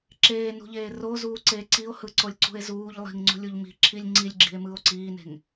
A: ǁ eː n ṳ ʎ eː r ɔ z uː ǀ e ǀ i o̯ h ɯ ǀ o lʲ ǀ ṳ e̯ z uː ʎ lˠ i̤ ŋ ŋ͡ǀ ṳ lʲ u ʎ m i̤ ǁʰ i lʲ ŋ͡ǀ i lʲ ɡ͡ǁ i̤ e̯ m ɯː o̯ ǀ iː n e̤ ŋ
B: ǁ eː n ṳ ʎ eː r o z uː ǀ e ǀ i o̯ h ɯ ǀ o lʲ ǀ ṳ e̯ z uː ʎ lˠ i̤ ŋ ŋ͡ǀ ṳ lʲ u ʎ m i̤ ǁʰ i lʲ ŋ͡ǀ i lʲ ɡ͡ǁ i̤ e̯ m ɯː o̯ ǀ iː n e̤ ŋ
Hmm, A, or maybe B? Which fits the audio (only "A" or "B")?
B